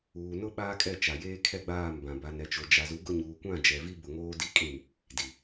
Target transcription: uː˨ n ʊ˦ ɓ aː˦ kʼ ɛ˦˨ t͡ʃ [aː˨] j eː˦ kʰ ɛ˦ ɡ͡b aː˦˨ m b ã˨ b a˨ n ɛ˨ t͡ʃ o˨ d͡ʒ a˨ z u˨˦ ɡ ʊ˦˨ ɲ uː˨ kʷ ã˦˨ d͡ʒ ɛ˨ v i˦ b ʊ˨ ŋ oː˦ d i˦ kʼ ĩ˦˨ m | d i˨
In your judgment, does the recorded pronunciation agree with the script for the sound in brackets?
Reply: no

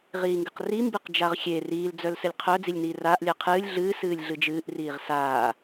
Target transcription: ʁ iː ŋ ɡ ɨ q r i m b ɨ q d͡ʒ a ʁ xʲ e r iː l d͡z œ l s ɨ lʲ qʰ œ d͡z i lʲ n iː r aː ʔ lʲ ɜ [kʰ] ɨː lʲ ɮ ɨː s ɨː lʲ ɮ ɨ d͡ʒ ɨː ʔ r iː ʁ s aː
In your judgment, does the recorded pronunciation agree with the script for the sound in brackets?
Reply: no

